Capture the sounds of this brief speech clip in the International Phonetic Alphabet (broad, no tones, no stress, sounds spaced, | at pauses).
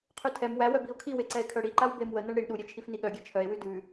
qʰ ʉ tʰ ɛ m w æ w œ b i o̯ kʰ i w e ǀ ɛ e̯ kʰ œ ɽ i ǃ a w b e m w ə n ɤ ɳ ɽ i ɳ ɗ u ɾʲ e t͡ʃʰ i f n i ɠ œ ɡʲ ɛ t͡ʃʰ œ e̯ w ʉ d ʉ